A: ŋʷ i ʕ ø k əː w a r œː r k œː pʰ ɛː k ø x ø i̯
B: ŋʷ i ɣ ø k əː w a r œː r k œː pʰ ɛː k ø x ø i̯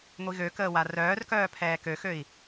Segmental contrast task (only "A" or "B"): B